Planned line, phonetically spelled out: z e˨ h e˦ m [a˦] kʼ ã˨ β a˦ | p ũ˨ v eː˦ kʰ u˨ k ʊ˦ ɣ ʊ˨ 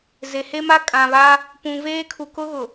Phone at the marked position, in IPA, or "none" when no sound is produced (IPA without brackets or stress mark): a˦